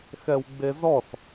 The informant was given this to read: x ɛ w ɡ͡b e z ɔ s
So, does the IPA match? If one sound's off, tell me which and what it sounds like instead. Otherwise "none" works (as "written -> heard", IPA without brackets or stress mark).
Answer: none